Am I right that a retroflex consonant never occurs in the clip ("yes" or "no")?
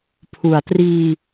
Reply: yes